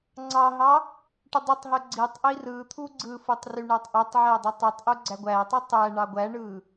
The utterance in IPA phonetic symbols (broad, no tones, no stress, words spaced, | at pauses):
ŋ͡ǀɑɦɑ | ʈudˤutˤɦø ɡ͡ǀitˤ ʔirɯt̪ʰu ɡ͡ǀɯfɯtˤ ryɳætˤʔotˤʕæ dˤytˤutˤʔu ɡ͡ǀæɡʷætˤɯ tˤæ ɳɑɡʷæɳɯ